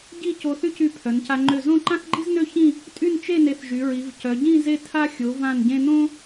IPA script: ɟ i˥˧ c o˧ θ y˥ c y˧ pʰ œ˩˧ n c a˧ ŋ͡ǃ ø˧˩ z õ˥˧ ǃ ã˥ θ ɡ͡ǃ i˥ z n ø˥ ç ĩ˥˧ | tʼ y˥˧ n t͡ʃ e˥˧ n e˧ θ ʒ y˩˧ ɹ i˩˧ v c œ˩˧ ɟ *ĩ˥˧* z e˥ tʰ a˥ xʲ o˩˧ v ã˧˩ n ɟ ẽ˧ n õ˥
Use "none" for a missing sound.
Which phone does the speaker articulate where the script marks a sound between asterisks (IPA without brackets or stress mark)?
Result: ĩ˥˧